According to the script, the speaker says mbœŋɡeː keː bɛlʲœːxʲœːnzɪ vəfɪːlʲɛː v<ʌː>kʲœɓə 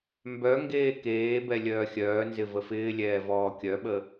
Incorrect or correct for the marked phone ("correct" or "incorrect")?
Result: incorrect